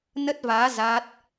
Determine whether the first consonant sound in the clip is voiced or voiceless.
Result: voiced